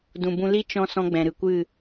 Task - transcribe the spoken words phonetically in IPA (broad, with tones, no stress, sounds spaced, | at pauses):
d ũ˨ b ũ˧ l i˦ t͡ʃ ɔ̃˦ s ɔ̃˦ ɡ͡b ɛ̃˨ ɾ ɨ˨ kʷ ɨ˦˨